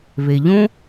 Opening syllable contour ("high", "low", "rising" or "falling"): low